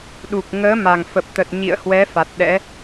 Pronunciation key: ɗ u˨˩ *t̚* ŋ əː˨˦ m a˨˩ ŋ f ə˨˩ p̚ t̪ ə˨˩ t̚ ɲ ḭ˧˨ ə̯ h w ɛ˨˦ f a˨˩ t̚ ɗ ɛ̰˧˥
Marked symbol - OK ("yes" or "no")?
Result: no